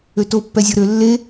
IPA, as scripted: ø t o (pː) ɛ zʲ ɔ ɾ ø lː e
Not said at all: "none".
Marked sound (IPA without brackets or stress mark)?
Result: pː